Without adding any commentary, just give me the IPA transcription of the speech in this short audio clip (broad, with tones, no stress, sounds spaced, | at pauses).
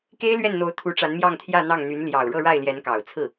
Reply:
k e˥ ɪ̯ l ɥ ɛ˥˩ n n̪ o˧˥ ʊ̯ t̪ʰ u˧˥ ʈ͡ʂ a˧˥ n m j ɑ˥˧ ŋ t̪ʰ j ä˥˧ n̪ ɑ˥˩ ŋ n̪ y˧˥ n l j ɑ˨˩ ʊ̯ ɻ ɤ˥˧ ɻ a˥˩ ɪ̯ l j ɛ˧˥ n k ɑ˨˩ ʊ̯ t͡sʰ ɹ̩˥˩